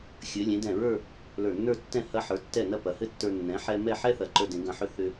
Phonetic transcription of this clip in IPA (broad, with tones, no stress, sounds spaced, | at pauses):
xʲ ɘ˩˧ lʲ ẽ˩˧ d ɛ̃˧˩ ɹ ə˞˥˧ | l ə˞˧˩ nː ə˞˥˧ tː ɛ̃˥˧ h ɐ˧ ħ ə˞˩˧ tː ɛ˧˩ n ɐ˥˧ p ɐ˩˧ h ɘ˥˧ tː ə˞˧ nː ɛ̃˩˧ ħ ɛ˧ m ɛ˥˧ ħ ɛ˥ θ ɐ˩˧ ǃ ə˞˧ d ẽ˩˧ ɡ ɐ̃˧˩ ħ ʏ˥˧ θ ʏ˧